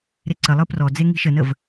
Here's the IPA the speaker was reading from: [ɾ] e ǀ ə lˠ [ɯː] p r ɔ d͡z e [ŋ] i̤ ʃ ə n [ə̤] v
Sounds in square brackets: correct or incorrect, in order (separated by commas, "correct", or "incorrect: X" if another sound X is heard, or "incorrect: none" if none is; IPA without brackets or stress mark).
correct, incorrect: ɯ, correct, incorrect: ə